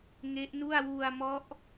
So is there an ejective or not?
no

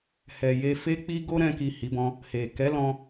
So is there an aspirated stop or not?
no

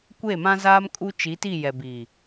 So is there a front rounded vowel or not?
no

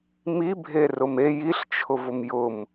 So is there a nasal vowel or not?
no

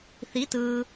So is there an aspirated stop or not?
no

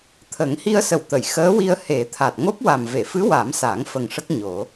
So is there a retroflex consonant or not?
yes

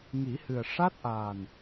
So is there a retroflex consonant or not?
yes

